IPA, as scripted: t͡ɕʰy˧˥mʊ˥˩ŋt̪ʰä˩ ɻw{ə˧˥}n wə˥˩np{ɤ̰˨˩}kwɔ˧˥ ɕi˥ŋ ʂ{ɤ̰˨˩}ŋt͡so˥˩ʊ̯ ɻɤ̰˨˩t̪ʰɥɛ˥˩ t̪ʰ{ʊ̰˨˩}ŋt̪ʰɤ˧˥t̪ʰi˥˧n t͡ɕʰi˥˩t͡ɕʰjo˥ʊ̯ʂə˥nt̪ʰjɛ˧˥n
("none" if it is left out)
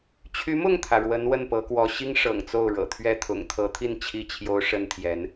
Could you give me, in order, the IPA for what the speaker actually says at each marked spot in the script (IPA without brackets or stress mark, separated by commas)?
ə˧˥, ɤ˧˥, ɤ̰˨˩, ʊ̰˨˩